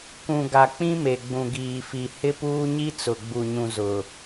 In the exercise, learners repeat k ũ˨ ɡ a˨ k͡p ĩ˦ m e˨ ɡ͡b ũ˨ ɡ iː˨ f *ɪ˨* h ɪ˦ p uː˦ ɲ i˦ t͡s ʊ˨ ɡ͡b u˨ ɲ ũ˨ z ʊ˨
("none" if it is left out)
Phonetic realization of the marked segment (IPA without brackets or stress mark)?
i˨